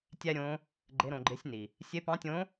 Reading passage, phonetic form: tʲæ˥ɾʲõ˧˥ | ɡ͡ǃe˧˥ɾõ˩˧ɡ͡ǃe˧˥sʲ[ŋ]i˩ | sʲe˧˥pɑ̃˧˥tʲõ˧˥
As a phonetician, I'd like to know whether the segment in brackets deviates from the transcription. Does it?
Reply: yes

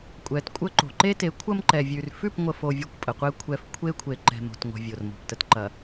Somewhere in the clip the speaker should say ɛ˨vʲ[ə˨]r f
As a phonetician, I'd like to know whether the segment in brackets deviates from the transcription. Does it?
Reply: yes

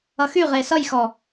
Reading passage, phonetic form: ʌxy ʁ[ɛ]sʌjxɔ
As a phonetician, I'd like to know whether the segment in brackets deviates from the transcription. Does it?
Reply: yes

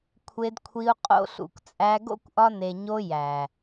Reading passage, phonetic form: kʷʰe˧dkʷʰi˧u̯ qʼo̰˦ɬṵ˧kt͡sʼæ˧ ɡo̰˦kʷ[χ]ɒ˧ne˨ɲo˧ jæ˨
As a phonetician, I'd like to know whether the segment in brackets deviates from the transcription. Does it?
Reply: yes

